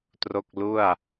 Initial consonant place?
alveolar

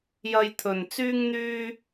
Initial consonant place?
palatal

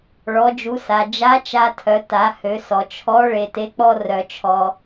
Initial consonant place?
retroflex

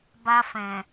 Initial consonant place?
labial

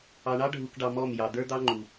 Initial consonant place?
retroflex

